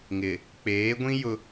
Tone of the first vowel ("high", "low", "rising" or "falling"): low